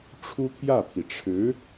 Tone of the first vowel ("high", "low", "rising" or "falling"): high